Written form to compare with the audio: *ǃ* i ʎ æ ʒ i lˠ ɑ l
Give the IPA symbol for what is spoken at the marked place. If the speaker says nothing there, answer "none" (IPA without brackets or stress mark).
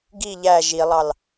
ɡ